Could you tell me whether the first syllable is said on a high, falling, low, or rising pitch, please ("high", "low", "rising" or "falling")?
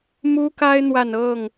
high